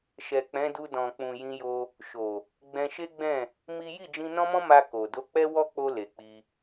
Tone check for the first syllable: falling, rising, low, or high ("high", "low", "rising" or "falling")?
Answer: low